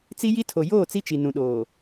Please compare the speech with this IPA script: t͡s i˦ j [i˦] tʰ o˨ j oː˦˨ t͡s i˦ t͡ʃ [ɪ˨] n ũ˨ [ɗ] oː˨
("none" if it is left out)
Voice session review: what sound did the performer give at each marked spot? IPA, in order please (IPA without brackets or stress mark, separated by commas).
i˦, i˨, ɗ